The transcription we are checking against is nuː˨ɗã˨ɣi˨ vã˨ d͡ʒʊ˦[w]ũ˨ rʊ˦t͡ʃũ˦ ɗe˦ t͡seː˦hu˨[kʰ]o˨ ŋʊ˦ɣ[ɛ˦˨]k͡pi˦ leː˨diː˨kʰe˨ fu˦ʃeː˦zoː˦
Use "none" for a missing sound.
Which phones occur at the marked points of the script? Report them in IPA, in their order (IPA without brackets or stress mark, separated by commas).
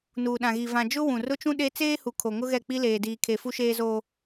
w, kʰ, ɛ˦˨